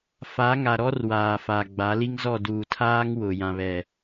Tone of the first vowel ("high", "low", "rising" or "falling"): rising